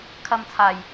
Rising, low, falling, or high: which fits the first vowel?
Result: high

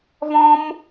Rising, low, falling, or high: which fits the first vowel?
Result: high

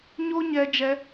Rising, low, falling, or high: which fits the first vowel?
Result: high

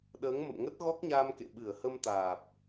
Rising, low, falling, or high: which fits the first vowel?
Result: rising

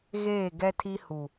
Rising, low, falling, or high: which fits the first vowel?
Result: falling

